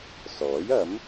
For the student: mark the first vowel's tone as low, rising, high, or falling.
rising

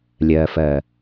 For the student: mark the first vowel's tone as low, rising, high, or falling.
low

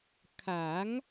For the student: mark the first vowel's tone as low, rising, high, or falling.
rising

